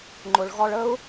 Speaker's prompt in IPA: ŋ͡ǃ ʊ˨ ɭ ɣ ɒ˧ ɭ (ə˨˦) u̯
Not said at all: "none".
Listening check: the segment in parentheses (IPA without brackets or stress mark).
ə˦